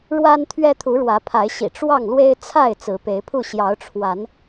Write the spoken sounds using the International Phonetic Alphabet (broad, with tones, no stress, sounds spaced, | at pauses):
ɻ w a˦ n t̪ʰ ɥ ɛ˦ t̪ʰ u˨˦ ɻ w ä˨˦ pʰ a˨˦ ɪ̯ ɕ ḭ˨˩ ʈ͡ʂ w ɑ˥˨ ŋ l w e˦ ɪ̯ t͡sʰ a˥˨ ɪ̯ t͡s ɹ̩˨˦ p e˨˦ ɪ̯ pʰ u˥˨ ɕ j ɑ˨˦ ʊ̯ ʈ͡ʂʰ w a˨˦ n